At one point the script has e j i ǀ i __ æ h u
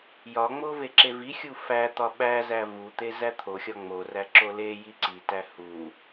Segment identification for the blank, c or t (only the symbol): t